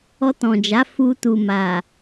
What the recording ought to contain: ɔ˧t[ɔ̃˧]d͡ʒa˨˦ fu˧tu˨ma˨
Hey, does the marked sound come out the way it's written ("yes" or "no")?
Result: no